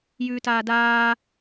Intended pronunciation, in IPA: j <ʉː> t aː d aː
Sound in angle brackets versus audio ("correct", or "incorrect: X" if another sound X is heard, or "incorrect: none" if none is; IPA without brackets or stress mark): correct